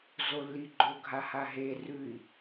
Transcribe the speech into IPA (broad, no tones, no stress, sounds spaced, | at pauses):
z o lː i ɡ͡ǃ o ɡʱ a h a ɦ e r ʉ i̯